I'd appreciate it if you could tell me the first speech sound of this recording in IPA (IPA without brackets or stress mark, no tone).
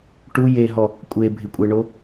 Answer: ʈ